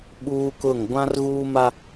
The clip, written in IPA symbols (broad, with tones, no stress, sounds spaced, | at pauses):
ɓ uː˦ k ʊ˦˨ ŋ ɡʷ ã˦ r ɣ uː˦ m a˦